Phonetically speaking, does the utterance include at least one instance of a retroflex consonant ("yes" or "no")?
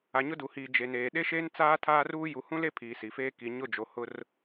no